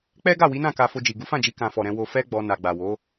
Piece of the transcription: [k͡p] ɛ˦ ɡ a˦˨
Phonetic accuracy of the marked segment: correct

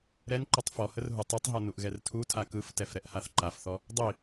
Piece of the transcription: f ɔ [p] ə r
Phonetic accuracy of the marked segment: incorrect: h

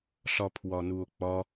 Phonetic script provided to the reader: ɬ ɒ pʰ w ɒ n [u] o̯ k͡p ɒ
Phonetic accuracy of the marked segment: correct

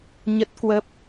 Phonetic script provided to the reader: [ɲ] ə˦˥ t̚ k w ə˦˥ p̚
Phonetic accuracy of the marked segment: correct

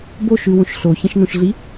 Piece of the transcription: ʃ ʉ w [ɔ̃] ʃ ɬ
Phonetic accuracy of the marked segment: incorrect: õ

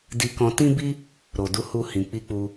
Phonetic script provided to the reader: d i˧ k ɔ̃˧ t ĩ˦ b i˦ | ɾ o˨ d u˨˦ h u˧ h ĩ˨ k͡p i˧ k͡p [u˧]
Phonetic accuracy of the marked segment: correct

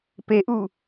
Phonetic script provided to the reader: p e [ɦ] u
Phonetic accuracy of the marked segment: incorrect: ʔ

